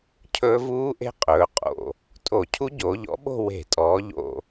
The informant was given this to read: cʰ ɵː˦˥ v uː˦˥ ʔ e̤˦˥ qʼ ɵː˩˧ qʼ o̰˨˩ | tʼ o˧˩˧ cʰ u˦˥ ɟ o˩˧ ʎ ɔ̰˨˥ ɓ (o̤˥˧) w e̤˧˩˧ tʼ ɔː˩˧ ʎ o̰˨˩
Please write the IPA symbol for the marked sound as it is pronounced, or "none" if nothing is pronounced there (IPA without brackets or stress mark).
o̤˥˧